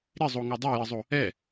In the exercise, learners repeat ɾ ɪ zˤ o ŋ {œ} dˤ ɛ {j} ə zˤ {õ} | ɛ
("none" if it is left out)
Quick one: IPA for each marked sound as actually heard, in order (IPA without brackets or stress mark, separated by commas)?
œ, j, o